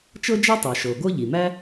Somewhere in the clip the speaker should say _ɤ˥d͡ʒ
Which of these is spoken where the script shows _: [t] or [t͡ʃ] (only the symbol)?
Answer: t͡ʃ